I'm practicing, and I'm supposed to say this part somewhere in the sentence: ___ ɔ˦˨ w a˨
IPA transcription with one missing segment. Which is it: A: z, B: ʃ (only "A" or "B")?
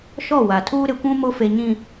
B